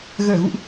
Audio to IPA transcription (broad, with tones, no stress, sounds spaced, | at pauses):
ɣ əː˧˩ ɣ ṵ˧˨ ʔ